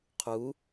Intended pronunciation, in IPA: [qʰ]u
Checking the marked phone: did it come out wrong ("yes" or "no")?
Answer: no